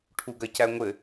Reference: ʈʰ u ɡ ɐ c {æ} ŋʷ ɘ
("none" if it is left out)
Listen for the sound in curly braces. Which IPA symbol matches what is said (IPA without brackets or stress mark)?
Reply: æ